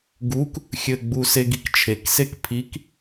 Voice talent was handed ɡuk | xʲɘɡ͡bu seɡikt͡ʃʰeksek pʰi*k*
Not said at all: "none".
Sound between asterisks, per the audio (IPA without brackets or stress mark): k